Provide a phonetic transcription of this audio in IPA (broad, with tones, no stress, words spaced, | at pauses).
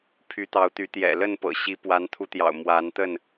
pʰy˨˦t̪ɑ˨˦ʊ̯t̪y˨˦ t̪jɛ̰˨˩lə˥˨npɤ̰˨˩ɕi˨˦ pwa˨˦nt̪ʰu˨˦t̪jɑ̰˨˩ʊ̯ mwa˨˦nt̪ə˥˨n